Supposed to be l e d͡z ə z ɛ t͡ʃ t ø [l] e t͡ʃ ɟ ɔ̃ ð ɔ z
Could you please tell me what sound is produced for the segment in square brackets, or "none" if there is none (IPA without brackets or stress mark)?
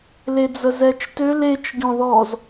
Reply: l